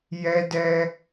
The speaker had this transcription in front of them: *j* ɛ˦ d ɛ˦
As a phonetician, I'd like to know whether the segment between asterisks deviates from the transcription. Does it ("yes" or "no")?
no